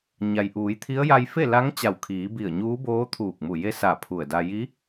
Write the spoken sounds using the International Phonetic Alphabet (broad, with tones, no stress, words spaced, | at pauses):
ɲa˩jʔuː˩˧jt̪ʰi˧˥ə̯ ja˧jfe˥˨la˧˥ŋ t͡ɕa˧˩wkʰiː˩˧ bi˧˩ə̯ɲuː˧˥boː˧˥ t̪ʰuː˧˩k̚mu˧˩ je˧˥ sa˧˩pʰu˧˩ə̯da˧ ji˧˥